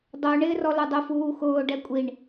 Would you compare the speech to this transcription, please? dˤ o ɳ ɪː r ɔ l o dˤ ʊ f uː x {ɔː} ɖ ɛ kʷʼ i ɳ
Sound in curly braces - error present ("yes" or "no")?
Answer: yes